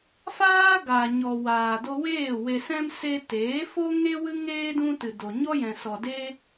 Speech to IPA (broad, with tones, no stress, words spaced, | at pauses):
faː˦ɡaː˨ɲɔ˨ waː˨do˧weː˦˨ we˨sɛ̃˧m se˧teː˨˦fo˦ŋe˦ wɨ˦ŋeː˦ dũ˦tɨ˨do˨ ɲɔ˦jɛ̃˨sɔ˨ de˦